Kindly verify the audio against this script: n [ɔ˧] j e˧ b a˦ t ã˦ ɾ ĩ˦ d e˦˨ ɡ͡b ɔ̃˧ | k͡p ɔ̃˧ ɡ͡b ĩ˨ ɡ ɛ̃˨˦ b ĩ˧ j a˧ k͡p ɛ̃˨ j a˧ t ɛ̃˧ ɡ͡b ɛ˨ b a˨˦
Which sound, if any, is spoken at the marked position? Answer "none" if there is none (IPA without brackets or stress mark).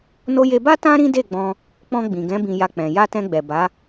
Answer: o˧